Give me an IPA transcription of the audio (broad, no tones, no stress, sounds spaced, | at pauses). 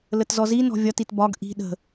l ə t z ɔ z i n ɔ̤ vʲ ɒ t i t b ɒ ɡ ʔ i̤ ɗ ə̤